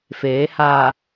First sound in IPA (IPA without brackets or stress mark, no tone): f